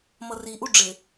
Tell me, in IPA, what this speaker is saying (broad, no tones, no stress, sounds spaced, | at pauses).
m ʌ r i ʔ u ɖ͡ʐ ɪ